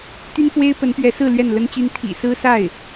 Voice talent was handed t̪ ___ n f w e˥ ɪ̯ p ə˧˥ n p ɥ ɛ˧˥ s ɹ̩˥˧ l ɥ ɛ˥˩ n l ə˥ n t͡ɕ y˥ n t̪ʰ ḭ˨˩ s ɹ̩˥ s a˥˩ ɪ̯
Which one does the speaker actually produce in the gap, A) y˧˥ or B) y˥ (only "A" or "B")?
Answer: B